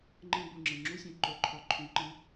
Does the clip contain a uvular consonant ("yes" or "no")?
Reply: no